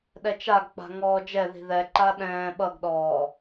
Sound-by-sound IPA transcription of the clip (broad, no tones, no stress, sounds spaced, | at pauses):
ɗ ɛ t͡ʃ a ɡ k͡p a̤ ŋ ɔː d͡ʒ ɛ ð i̤ ð ɛ ǃ a ɗ ɛ̃ː ɓ ʌ ɡ ɗ ɔː